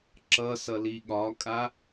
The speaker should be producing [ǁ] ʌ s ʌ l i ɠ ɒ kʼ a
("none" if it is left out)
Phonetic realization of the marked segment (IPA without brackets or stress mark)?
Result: ǁ